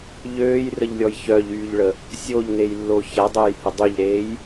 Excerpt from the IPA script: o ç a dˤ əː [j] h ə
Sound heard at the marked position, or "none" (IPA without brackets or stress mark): j